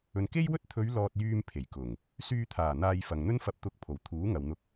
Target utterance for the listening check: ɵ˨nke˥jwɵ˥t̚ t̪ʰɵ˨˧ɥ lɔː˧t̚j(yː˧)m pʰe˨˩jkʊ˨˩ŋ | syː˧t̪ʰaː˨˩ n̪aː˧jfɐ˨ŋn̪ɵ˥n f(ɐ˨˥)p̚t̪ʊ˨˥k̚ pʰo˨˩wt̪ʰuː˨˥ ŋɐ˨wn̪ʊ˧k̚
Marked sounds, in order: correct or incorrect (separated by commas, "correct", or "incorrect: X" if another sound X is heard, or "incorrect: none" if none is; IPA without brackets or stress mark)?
correct, correct